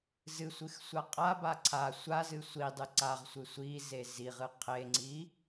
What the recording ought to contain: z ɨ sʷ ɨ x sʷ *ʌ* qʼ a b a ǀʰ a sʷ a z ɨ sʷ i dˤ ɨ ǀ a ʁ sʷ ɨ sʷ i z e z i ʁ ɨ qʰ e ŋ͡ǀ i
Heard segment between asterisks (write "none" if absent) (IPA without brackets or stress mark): a